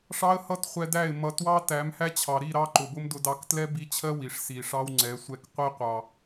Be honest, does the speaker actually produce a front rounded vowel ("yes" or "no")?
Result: no